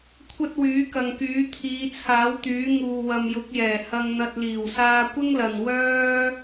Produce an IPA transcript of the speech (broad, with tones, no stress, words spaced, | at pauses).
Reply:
kʷʰɐ˥t̚wyː˨˥kɐ˨ŋkyː˨˥ t̪ʰiː˨˧t͡sʰaː˨˥wt̪yː˨˥ ŋuː˨ wɐ˨mjʊ˨˥k̚jɛː˨˩ hɐ˧ŋn̪ɐ˧t̚ liː˨˩wsaː˧kʷɪ˥ŋlɐ˨n wœː˥